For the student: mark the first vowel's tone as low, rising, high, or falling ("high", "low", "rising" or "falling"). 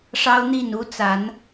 high